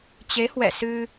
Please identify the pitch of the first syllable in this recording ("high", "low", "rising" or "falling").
rising